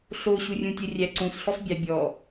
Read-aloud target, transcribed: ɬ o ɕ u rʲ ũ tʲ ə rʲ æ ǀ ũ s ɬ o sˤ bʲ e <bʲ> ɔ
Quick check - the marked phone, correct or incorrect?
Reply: correct